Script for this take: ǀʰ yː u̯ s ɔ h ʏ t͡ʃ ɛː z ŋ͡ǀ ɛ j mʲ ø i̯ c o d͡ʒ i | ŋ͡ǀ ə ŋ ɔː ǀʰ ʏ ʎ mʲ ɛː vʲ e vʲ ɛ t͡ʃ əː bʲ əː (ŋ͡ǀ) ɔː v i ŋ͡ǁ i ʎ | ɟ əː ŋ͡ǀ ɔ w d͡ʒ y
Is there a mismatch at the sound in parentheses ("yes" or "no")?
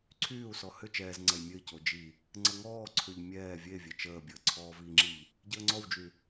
yes